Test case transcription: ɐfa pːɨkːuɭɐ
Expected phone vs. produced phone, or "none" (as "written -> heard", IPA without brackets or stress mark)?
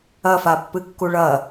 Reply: none